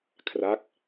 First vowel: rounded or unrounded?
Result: unrounded